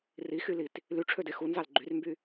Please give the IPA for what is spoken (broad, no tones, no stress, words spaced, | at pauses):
rixylit | lyʈ͡ʂʰøde xunzɑl ɡ͡ǃyrmby